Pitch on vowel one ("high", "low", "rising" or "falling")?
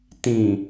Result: low